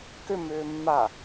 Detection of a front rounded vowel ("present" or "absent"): present